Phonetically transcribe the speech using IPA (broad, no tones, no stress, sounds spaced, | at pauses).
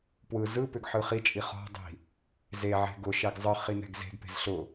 p w ɯ z ɯ p ʏ ɡ ħ ɯ χ i t͡ʃʼ i χ ɔ̤ dˤ i̤ | z e ʕ e̤ ɡ ʊ ʃ ɛ ɡ zˤ ɯ χ i n ɛ̤ ɡ z e̤ ɡ p e̤ z ɬ ʊ